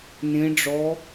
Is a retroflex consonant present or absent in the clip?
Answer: present